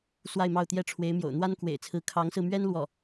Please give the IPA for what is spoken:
s w a˥˧ ɪ̯ m ɑ˥˩ ʊ̯ t̪ j ɛ˥ ʈ͡ʂʰ w e˧˥ ɪ̯ m j o̰˨˩ ʊ̯ n̪ w a˥ n k w ḛ˨˩ ɪ̯ t͡sʰ ɹ̩˧˥ kʰ ɑ˧˥ ŋ s ɹ̩˧ m ɥ ɛ˥ n l w ɔ˥˩

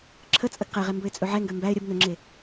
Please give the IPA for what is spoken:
ǁʰ ə t͡sʼ ə ɡ q ɛ ʁ ɛ m b ɵ ɪ̯ t͡sʼ ɵ ʕ ɛ ŋ ɡ ø m b æ ɪ̯ ɾʲ ə b n ɵ ŋ͡ǁ e

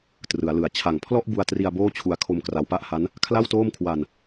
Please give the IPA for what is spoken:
t r ɯ˩˦ a̯ l ɯ˨˩ a̯ t͡ɕʰ a˨˩ ŋ pʰ l ɔ˥˩ ʔ b u˧ a̯ t r i˧ a̯ b oː˥˩ t͡ɕʰ u˧ a̯ kʰ o˧ m k r a˩˦ w p a˥˩ ʔ h a˦˥ n | kʰ l a˥˩ w t oː˥˩ m kʰ w a˧ n

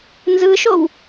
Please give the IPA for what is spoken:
n z ɯ ʃ o w

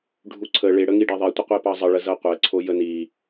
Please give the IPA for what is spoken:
ɖʱ u ǀʰ ə ɭ e ɽ ə ŋ i ɖ ɛ ðˤ i tʷ ə qʷ i p ɑ zˤ ə ɭ ə z ɤ qʷ ɛ ǀʰ o j ə n i

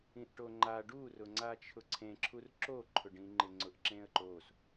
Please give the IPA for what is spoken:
ĩ ʔ ʈ o ŋ͡ǃ a ɖ u r ʊ ŋ͡ǀ a t͡ʃʰ ʊ ǀʰ ẽ ǁʰ u r ǁ o ǃʰ ʊ ɖ ĩ ŋ͡ǃ ɪ ŋ͡ǀ ʊ ʔ ǁ ẽ ə̯ ǃ o s

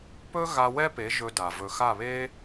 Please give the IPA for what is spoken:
p ɵ˦ ɣ a˧ w ɛ˦ p e˨˦ ʒ ɵ˧ d a˨ v ɵ˨ x a˦˨ β e˦

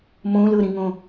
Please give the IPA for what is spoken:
m õ l ɤ ɾ ĩ ŋ õ

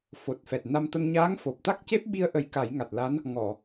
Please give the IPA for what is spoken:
f o˨˩ t̚ f ɛ˨˩ t̚ n a˧ m t̪ ə˧ ŋ ɲ aː˧˥ ŋ f o˨˩ p̚ t̪ a˦˥ k̚ c e˦˥ p̚ ɓ i˧ ə̯ ʔ ə˨˩˦ j k a˨˩˦ j ŋ a˨˩ t̚ l a˧˥ n | ŋ ɔ˨˩˨

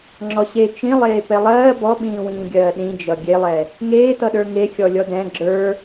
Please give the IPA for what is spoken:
ŋ͡ǁ ɔ ɕ e t͡ʃ ĩ lˠ eː p ɛ lˠ ɜː b ɔ ɓ ĩː w ĩː ɡʲ ɜː ɗ ĩ d͡ʒ ʌ ɡʲ e lˠ ɛ | ŋ eː t ʌ ɗ ə˞ ŋ e xʲ ɔ lʲ ɔ d ɛ̃ ɡ͡ǁ ə˞

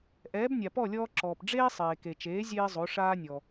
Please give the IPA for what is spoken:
ʔ ɛː˩˥ b nʲ a˩ p ɔ˥˩ lʲ ɔː˧ ǁ ɔː˩ p ɖ͡ʐ eː˥ sˤ eː˩ k e˩ t͡ʃ eː˩˥ zʲ eː˥ zˤ o˩˥ ʂ aː˥ nʲ ɔ˩

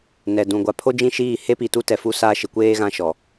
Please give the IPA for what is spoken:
n ɛ˨ d ũ˨ ɡʷ a˨ pʰ o˦ d͡ʒ ĩ˦˨ ʃ iː˦˨ h e˦ p i˨ t u˦ t ɛ˨ f u˦ s a˦ ʃ ɪ˨ kʷ eː˦ ɣ ã˦ ʃ ɔ˨

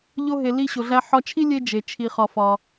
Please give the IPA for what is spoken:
ʎ o˧ ɦ e˩ l i˧ ɕ o˩ ɮ æ˧ ħ ɒ˧ t͡ʃʰ i˥ lʲ e˥ d͡ʒ e˩ t͡ʃʰ i˩ χ ɒ˩ f ɒ˩

